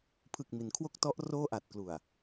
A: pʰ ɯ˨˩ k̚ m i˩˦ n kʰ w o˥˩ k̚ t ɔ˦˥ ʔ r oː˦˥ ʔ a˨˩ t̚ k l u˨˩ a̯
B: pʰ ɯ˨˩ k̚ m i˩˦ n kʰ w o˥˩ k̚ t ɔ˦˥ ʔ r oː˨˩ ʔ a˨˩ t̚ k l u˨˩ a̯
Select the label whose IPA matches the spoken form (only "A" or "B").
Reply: A